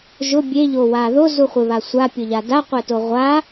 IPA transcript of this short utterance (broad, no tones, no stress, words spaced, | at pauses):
ʒʊ bʲeʎowa ðozuχʷɪβa sʷapʲʊʎa daqʷɛto ʁʷa